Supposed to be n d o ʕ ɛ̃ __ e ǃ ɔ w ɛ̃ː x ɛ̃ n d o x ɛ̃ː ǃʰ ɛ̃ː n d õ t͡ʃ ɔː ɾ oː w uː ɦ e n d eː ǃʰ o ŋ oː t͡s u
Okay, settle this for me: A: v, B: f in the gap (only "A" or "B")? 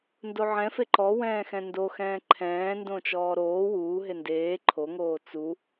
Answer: B